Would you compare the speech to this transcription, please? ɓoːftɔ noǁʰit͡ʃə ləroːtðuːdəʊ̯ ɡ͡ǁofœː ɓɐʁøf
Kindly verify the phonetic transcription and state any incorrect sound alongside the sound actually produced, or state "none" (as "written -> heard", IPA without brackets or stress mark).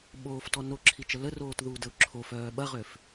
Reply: ɡ͡ǁ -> ǁʰ